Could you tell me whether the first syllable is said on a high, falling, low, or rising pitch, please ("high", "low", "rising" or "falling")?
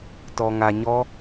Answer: low